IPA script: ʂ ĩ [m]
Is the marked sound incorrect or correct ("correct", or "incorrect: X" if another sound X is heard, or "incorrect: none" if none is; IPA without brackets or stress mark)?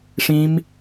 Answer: correct